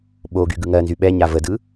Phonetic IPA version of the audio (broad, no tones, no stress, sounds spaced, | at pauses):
ɓ o ɡ y ɡ ɯ ŋ ɜ n z y ɓ ɛ ɲ a v ə d ɯ